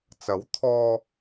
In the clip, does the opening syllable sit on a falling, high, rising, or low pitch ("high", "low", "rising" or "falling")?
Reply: rising